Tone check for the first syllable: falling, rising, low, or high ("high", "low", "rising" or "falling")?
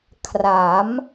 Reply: rising